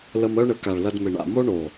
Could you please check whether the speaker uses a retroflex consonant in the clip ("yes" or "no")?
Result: yes